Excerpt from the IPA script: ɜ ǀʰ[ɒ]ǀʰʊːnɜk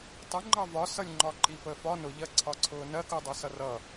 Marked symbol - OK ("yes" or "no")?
yes